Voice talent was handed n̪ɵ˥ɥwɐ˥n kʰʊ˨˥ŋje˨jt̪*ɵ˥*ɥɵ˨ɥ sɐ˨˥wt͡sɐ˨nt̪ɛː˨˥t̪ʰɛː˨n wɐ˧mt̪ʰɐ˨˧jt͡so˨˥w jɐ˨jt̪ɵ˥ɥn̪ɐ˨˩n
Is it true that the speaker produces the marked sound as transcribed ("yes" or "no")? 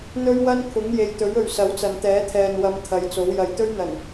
no